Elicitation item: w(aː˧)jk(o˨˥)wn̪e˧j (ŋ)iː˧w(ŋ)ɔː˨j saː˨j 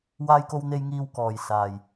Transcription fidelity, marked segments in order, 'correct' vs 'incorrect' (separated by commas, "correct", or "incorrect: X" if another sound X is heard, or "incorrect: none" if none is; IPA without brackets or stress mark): correct, incorrect: o˧, correct, incorrect: k